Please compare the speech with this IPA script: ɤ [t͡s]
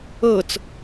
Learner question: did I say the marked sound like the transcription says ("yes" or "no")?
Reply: yes